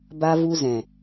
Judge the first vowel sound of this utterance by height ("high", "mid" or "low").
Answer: low